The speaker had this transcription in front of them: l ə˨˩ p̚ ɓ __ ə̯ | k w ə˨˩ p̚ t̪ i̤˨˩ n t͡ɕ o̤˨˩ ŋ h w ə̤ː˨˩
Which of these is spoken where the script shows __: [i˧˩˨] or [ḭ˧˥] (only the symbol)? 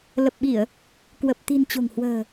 i˧˩˨